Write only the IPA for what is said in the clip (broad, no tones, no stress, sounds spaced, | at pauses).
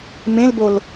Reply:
m ẽ l b o l